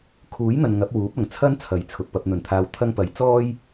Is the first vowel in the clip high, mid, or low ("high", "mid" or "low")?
high